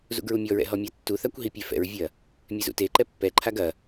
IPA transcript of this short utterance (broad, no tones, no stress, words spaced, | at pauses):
zṵɡɹumʲɔɹɛ̰ ɦɔmʲatːuθakʷ ɦipʲɛfɛ̰ɹvʲɐ | mʲɛzṵteǃɛ pːɛǃʰaɡ ɐ